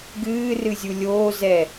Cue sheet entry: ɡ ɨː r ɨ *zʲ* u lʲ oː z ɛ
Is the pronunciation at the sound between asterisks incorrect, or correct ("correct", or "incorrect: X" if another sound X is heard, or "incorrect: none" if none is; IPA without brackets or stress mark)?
correct